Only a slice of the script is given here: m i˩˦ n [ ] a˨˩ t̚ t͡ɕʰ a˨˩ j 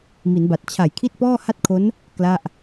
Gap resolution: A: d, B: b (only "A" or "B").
B